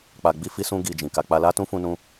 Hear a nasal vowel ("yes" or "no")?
yes